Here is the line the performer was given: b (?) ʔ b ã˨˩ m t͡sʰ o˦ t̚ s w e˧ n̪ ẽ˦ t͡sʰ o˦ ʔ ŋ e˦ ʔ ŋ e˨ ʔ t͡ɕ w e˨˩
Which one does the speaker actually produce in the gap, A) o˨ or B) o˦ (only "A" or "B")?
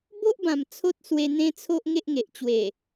B